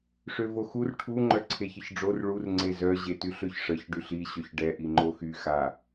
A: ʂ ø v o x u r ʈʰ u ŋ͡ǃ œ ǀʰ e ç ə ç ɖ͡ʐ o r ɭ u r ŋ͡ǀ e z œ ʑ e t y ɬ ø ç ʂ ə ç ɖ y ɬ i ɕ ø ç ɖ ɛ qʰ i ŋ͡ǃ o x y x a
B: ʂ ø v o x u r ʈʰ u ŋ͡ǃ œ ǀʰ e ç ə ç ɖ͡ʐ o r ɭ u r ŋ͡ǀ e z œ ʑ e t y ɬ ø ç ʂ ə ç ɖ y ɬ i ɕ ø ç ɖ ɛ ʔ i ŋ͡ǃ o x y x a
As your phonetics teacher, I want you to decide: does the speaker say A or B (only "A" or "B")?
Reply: B